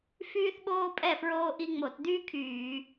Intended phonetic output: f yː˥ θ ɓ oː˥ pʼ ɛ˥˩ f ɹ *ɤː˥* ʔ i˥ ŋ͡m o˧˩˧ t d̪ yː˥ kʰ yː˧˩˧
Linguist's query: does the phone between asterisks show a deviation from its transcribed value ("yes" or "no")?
yes